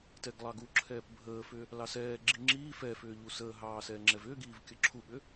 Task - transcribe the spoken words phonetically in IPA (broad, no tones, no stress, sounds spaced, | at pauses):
t ɛ ɡ lˠ ɑ ɡ u ǁʰ ɛː p bʱ əː f ʏ | l ɑ s ɛː ɡ͡ǁ i ŋ͡ǁ iː f ɛ f ʏː ʎ u s əː ɦ ɑː s ɛː ŋ͡ǁ ɛ v ʏː ɡ iː v kʲ ə ǁʰ u ɓ ʏ